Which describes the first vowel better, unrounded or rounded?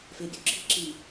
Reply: unrounded